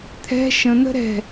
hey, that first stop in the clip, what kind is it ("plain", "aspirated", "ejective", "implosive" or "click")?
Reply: aspirated